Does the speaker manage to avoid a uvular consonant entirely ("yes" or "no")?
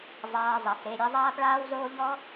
yes